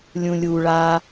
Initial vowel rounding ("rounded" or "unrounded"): rounded